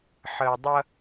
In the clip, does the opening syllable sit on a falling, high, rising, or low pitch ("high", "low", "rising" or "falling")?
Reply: low